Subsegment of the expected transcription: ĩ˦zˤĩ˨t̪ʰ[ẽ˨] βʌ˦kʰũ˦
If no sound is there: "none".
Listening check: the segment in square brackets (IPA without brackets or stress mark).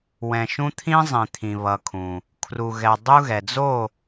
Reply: ĩ˨